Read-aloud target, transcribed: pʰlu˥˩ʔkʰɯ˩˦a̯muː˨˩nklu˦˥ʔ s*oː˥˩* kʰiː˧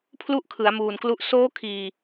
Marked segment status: incorrect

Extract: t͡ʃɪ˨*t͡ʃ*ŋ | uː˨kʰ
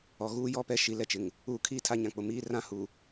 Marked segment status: incorrect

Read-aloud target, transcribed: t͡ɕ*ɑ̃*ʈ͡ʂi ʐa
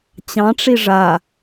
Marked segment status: correct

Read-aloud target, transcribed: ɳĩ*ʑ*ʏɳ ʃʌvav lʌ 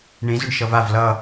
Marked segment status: incorrect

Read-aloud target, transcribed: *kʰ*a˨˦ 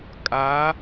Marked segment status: incorrect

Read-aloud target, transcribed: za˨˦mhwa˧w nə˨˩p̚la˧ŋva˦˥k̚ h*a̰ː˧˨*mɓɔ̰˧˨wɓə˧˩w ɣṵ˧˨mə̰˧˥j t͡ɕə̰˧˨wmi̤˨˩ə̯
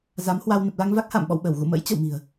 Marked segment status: correct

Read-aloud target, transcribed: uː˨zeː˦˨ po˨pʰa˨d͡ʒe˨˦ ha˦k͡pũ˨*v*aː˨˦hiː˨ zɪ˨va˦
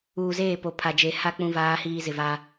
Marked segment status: correct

